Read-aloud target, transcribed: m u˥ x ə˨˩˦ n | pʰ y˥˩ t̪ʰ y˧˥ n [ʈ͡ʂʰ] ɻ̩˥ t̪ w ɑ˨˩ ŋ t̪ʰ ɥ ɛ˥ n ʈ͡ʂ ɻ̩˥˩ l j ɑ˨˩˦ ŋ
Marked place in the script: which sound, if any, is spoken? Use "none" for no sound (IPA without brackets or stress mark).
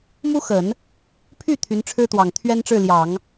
ʈ͡ʂʰ